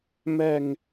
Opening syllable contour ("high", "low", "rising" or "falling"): low